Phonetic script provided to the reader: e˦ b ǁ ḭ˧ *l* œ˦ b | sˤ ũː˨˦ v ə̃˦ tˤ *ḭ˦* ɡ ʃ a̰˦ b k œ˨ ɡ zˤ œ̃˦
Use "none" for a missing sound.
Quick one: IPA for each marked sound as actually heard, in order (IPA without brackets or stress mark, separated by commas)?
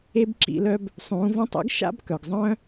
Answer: l, ḛ˦